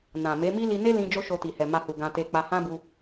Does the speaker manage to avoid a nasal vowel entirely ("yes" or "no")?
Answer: no